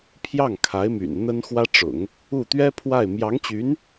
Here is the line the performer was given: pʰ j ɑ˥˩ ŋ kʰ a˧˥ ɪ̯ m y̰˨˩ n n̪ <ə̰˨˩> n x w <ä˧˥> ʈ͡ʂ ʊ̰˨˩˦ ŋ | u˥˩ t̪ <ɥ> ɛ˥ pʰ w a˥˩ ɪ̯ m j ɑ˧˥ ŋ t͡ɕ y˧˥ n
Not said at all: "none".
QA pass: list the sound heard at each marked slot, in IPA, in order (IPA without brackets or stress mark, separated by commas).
ə˥, ä˥, ɥ